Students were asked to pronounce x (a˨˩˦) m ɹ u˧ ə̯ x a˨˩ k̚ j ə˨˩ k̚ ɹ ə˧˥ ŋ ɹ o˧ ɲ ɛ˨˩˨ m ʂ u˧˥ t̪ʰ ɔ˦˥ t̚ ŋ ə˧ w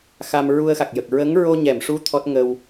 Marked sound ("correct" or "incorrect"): incorrect